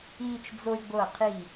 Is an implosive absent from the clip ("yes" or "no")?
yes